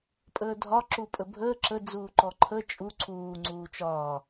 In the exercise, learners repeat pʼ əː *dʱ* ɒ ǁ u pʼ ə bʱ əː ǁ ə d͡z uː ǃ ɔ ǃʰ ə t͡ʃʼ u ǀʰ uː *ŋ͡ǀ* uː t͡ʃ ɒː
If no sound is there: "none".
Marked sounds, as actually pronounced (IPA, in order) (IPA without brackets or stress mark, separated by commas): dʱ, ŋ͡ǀ